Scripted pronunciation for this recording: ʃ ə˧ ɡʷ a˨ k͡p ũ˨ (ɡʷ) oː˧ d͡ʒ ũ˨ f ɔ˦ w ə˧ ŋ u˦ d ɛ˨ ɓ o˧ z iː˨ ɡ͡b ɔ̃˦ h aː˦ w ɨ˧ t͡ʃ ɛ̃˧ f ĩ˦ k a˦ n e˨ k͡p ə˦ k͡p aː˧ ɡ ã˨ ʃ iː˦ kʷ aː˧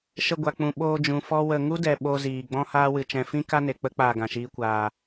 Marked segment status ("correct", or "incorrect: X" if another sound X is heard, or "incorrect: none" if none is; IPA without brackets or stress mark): incorrect: ɓ